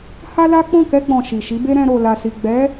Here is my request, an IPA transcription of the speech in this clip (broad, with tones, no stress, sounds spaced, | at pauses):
h a˦ l a˦ k͡p ɔ̃˦˨ k ɛ˧ ɡ͡b ɔ̃˨ ʃ i˨ ʃ i˨˦ b e˦ ɾ ɛ̃˧ ɾ o˨ l a˨ s i˨ ɡ͡b ɛ˨˦